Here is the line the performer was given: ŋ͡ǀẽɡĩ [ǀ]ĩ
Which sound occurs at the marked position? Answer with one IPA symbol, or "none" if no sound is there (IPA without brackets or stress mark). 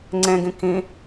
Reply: k